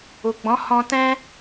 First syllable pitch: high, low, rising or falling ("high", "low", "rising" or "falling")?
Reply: low